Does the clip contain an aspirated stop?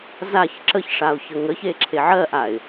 yes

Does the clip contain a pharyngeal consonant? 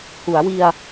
no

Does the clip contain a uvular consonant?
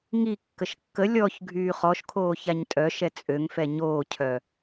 yes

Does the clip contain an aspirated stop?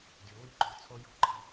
yes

